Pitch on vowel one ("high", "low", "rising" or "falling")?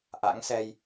rising